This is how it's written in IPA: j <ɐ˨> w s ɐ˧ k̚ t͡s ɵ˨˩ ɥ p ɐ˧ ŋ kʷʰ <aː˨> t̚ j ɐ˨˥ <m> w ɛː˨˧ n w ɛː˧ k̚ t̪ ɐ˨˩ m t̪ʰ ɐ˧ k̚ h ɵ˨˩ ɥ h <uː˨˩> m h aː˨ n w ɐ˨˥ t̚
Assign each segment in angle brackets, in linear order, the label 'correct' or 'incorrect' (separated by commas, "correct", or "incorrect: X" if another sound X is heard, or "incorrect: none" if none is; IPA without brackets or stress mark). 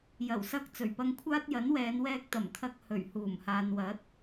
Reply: incorrect: ɐ˨˩, incorrect: aː˥, incorrect: n, correct